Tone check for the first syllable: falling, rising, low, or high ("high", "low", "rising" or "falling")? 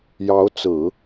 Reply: rising